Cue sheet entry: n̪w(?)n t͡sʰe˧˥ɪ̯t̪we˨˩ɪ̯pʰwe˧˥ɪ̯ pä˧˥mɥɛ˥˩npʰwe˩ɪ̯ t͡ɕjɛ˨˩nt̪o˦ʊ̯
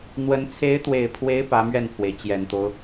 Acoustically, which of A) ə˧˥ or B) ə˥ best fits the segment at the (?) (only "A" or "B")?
A